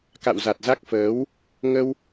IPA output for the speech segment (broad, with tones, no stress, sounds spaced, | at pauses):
k a̰˧˨ w z a˨˩ t̚ z a˦˥ k̚ f əː˨˦ w | ŋ ə˧ w